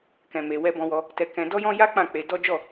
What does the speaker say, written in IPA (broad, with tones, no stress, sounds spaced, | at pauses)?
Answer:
k ɛ̃˧ m e˧ w ɛ˧ b ɔ̃˧ w ɔ˧ | t ɛ˧ k ɛ̃˧ d ɔ˦ j ɔ̃˦ j a˦ k͡p ã˦˨ k͡p e˧ d ɔ˦ d͡ʒ ɔ˦˨